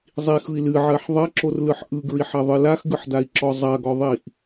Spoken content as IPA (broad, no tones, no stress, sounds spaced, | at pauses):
zˤ i x ɯ i̯ l ɨ ʕ ɜ ħ ðˤ ɐ ǁ o r l ɯ ħ ʔ ɯ ɡ ɹ i ħ ɐ ðˤ ɯ l a x ɡ ɯ ħ d a i̯ ǁ ɔ zˤ ɐ ɡ ɔ ðˤ i ʔ